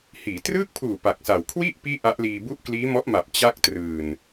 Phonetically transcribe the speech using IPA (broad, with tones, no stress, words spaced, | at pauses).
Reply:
hiː˩˦trɯː˥˩k̚pʰuː˨˩ pa˨˩k̚sa˨˩w kʰwi˥˩ʔ piː˥˩ʔa˦˥ʔliː˧bu˥˩ʔ kliː˦˥mɔ˦˥ʔma˨˩p̚ t͡ɕa˥˩k̚trɯː˨˩n